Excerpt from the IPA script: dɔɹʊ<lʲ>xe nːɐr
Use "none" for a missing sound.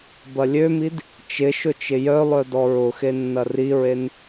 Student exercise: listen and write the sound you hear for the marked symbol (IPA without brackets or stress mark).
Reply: none